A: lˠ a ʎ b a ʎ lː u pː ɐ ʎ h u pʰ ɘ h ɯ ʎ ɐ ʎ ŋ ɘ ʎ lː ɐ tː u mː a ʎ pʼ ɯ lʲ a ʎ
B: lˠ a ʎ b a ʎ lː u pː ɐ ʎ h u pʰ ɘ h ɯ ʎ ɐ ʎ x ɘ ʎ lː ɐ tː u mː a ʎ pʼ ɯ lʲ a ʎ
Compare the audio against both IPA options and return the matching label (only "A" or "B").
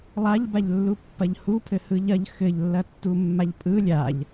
B